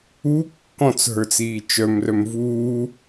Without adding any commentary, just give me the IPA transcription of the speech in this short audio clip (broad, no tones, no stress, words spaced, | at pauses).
u kːɔ̃t͡sɦə˞t͡siː t͡ʃœmrœm vuː